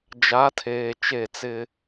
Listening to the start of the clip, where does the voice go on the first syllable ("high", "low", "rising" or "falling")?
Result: rising